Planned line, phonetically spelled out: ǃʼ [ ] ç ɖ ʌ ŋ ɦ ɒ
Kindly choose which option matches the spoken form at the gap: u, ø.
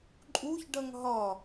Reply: u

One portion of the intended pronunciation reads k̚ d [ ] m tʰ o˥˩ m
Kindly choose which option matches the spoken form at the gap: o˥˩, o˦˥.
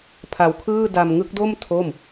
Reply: o˥˩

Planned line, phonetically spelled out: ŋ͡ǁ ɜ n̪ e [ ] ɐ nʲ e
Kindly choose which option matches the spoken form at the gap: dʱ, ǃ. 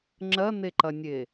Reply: ǃ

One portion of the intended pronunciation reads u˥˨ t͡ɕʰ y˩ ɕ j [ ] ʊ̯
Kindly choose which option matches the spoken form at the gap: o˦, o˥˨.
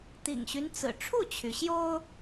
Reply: o˦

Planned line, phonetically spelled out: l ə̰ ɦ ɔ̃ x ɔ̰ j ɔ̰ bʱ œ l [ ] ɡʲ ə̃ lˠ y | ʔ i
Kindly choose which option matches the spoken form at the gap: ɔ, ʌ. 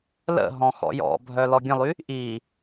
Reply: ɔ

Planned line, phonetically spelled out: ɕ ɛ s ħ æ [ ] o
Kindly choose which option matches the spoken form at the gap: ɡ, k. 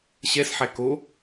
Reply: k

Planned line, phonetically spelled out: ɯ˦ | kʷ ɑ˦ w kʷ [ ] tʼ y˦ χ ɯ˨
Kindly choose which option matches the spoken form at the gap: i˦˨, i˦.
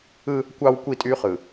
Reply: i˦˨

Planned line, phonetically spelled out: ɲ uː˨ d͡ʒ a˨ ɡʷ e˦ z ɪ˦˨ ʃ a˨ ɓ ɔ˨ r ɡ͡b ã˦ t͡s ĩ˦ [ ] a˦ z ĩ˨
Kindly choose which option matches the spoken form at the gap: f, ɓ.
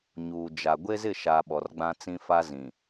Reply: f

